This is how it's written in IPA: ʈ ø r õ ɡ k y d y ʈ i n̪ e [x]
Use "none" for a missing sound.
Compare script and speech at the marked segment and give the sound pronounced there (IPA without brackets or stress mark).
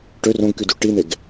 ɡ